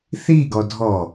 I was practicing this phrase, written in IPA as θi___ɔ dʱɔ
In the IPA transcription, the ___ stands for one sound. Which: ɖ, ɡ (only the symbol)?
ɡ